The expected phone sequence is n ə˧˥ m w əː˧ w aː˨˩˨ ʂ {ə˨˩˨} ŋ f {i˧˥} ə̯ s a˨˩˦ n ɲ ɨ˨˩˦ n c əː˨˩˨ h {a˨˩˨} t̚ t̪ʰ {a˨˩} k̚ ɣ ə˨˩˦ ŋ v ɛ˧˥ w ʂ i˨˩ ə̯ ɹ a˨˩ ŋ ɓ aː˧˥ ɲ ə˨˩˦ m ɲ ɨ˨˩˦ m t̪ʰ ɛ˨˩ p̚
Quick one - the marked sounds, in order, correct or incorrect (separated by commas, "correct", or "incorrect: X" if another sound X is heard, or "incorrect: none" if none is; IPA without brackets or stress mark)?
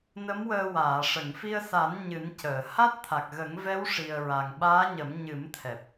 correct, incorrect: i˧, incorrect: a˦˥, correct